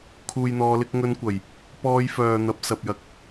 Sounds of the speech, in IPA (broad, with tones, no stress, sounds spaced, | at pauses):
kʰ uː˨ j n̪ ɔː˨˧ l ɪ˨˥ k̚ ŋ ɵ˧ n kʷ ɐ˨˩ j | p ɔː˧ j f œː˨ n̪ ɐ˨˥ p̚ s ɐ˨ p̚ j ɐ˧ k̚